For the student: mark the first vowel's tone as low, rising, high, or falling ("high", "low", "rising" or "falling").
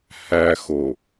low